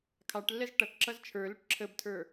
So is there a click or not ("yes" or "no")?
yes